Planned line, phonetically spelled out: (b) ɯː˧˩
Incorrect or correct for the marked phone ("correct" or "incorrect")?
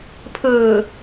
incorrect